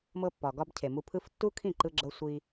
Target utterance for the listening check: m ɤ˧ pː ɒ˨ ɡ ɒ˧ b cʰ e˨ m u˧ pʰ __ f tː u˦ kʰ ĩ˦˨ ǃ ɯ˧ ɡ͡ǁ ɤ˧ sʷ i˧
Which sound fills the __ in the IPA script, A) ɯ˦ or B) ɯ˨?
A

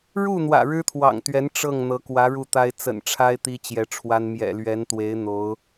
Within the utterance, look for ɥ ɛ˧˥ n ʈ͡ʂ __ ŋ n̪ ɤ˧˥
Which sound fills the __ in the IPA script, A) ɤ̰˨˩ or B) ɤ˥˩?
B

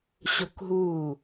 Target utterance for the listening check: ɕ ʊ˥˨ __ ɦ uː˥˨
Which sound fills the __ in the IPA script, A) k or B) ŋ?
A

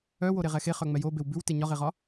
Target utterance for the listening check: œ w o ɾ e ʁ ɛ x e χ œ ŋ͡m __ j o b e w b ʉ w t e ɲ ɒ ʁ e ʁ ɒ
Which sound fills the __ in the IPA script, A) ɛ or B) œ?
A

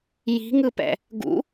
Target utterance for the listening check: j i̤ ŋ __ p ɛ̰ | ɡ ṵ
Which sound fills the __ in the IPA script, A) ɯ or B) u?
A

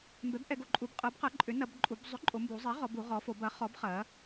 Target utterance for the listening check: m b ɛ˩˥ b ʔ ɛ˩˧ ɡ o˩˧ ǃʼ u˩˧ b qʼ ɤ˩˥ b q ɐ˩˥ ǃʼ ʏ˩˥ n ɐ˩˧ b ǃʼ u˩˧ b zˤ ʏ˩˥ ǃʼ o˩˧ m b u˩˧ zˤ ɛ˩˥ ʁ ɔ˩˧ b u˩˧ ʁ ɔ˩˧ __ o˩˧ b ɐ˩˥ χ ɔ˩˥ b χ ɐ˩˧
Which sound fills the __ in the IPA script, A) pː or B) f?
B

